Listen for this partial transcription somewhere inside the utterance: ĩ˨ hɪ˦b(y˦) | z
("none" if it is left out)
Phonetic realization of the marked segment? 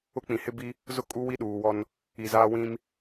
i˦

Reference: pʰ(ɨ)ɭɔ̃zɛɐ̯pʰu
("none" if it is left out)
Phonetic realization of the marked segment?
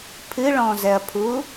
ɨ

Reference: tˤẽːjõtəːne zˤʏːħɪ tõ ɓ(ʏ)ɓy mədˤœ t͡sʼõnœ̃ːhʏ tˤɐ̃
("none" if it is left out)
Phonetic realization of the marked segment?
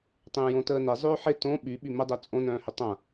y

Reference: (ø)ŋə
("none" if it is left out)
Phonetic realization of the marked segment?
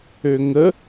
ø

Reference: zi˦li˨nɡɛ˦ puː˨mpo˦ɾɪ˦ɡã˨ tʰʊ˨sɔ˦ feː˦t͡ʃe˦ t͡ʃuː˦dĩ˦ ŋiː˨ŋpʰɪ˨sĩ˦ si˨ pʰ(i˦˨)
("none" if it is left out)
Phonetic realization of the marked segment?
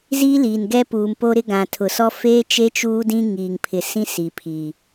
i˨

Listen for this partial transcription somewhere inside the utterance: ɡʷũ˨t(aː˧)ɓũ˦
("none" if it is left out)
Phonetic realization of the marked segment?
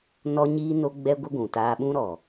aː˧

